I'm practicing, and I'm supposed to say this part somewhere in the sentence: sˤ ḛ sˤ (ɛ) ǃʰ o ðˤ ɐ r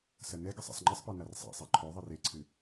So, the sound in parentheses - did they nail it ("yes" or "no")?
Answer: yes